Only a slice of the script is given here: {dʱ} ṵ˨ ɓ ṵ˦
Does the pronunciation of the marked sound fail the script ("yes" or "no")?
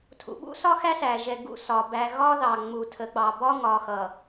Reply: yes